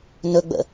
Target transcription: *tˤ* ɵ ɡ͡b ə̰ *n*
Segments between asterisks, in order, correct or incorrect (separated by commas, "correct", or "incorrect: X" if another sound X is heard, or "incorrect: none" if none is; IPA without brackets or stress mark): incorrect: n, incorrect: none